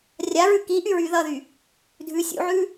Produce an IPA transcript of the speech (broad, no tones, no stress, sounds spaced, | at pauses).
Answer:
rʲ a ɹ ʉ k i ʔ y ɹ y ð ʌ ð y | dʱ ʉ sʲ ṵ ʕ ʉ